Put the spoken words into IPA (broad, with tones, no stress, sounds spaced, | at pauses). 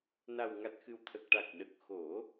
n a˨˩ w ŋ a˨˩ t̚ x ɨ˨˩ w t̪ʰ ə˨˩ k̚ ʈ a˨˩ k̚ ɗ ə˨˩ k̚ x o˨˩˦